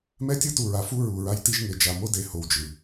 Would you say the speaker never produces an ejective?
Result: yes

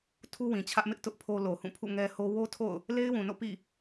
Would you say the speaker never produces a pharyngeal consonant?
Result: yes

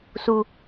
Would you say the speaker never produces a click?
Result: yes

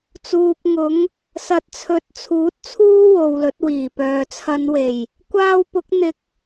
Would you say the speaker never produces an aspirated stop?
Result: no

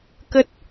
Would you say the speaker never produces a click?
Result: yes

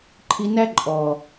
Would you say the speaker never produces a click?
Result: no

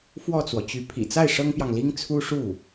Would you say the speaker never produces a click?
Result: yes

